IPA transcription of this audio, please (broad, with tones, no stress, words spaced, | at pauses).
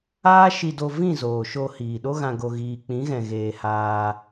aː˦ʃi˧do˧ vĩ˦˨zoː˨ʃo˧ hiː˨ɗo˦ɣã˧ ɡo˧ɣiː˧ k͡pĩ˨˦ɣɛ̃˨ɣeː˨ haː˧